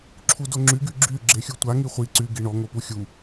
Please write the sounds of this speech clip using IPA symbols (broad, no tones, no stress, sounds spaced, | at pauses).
ǁʰ u d o ŋ͡ǁ y ɡ y ɡ͡ǁ y ɡ͡ǁ e xʲ u tʷ a ŋ i χʷ i ǀ y ɡ i ɳ ɔ ŋ o p u xʲ u